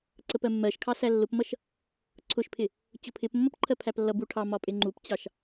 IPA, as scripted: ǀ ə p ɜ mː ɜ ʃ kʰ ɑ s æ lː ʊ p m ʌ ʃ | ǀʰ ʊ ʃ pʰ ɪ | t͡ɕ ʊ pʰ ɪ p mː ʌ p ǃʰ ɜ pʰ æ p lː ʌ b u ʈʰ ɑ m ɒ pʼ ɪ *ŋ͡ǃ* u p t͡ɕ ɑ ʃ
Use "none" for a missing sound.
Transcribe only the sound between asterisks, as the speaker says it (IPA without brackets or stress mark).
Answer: ŋ͡ǃ